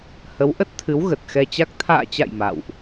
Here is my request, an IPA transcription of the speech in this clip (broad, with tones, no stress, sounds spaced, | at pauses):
h ə˨˦ w ʔ ə˦˥ t̚ t̪ʰ ɨ˨˦ w ɣ ə˨˩ t̚ x ɛ˧ t͡ɕ a˦˥ k̚ t̪ʰ a̰ː˧˨ t͡ɕ a̰˧˨ j m a̰˧˨ w ʔ